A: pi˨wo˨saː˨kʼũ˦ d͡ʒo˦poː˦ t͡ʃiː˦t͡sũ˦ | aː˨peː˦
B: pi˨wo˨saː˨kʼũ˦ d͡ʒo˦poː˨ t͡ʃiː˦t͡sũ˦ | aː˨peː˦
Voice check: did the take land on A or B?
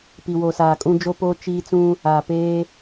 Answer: A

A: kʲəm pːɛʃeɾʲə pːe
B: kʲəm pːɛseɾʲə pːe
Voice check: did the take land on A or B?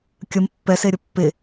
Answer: B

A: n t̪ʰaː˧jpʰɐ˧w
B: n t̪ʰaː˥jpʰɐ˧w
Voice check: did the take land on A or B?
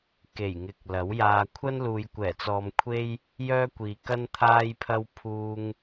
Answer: A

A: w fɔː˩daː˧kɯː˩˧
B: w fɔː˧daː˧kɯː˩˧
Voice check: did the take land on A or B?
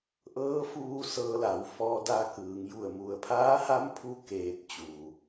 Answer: B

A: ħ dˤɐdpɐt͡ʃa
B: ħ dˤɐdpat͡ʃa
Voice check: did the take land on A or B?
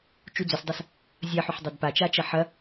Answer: B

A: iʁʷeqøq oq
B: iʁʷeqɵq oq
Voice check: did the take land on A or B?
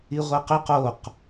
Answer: B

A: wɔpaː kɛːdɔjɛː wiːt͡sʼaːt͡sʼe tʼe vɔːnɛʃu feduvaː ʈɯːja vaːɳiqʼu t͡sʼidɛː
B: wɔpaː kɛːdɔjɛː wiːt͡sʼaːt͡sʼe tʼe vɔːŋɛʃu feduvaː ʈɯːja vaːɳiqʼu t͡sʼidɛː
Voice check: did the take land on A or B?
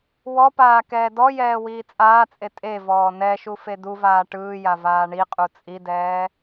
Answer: A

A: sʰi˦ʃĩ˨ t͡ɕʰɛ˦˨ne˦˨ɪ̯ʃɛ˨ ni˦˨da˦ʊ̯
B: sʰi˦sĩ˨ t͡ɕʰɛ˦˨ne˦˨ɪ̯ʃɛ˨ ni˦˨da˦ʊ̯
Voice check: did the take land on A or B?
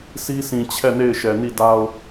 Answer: B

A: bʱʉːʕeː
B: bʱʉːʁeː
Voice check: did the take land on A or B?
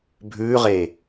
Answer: B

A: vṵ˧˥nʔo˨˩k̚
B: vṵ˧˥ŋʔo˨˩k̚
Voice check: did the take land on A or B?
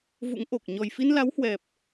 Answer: B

